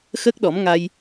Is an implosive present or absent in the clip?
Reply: present